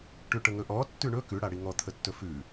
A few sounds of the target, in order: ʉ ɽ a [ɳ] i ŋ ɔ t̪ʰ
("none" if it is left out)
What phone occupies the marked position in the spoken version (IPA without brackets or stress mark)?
ɽ